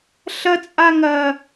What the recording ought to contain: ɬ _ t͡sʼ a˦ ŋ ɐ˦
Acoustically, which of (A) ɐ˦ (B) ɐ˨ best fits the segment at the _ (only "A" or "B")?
A